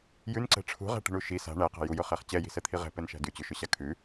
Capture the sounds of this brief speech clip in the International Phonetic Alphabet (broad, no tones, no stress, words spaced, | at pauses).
jʉnǀɛ̤ ʈ͡ʂʰṳʁæ̤ʈi̤ɳu ʃi sa̤ ɳæqa̤ jujʊχæχ t͡ɕɛji̤sɛt̪ʰi ʁɛ̤pɛnʃæ̤ dʉt͡ɕʉʃʊɕa kʰʉ